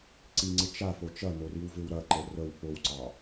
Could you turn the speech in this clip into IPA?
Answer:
ǀ i ŋ͡ǀ ɪ t͡ʃ a f o t͡ʃ ɐ n o r i w v ɪ w ɾ ɐ ǃ ə r ə w p o w ǀ ɑ

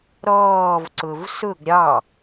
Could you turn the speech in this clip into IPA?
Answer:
ɾ ɔː v ǀ ʊ v s ʊ ɡ ɾʲ ɑ

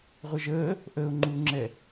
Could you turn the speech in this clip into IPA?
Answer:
ʁʷ ɛ ʒ əː | ʔ əː ʊ̯ ŋ͡ǃ uː ŋ͡ǁ ɛ

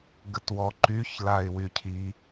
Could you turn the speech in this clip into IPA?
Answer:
ɡ ə t w ɔ ǃ y ç l a ɪ̯ w y cʰ i

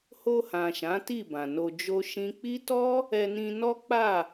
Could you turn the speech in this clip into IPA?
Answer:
h o˧ h ã˨ ʃ ã˨˦ t i˦˨ b ã˨ n o˧ d͡ʒ o˦ ʃ ĩ˦ k͡p i˦ t ɔ˦ | ɛ˧ n ĩ˧ n ɔ˦ k͡p a˦˨

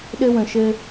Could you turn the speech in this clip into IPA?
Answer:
ɗ ɘ˦ w ə̃˧ ʃ ɘ˦

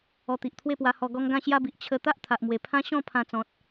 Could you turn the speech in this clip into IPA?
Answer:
ɔ˧ t̪ i˨ ʔ t̪ʰ w e˥˧ p w a˧ h ɔ˧ ɡ ɔ˦ ŋ ɡ ã˥˧ ɕ j a˦ b i˨ ʔ t͡ɕʰ ə˧ t̪ a˦ ʔ t̪ʰ a˨ ʔ m w e˨˩ pʰ ã˦ ɕ ɔ̃˥˧ pʰ ã˧ t͡s ɔ̃˨ t̚

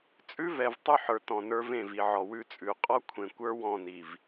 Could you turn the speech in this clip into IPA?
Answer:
t͡sʼ ʉ˦ v ɛ˨ v tˤ ʉ˦ ħ ə˞˨ t ɔ̃˨ n ə˞˦ v ẽ˦˨ v i˨ ʕ ɔ˨ w ʉ˦ t͡sʼ ʉ˨ qʼ ɔ˦ kʷʰ ẽ˨ kʷ ə˞˦ w ɔ̃˦˨ n i˨ v

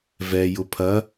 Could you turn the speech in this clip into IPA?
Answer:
v ɛ j ʊ pʰ ɐ

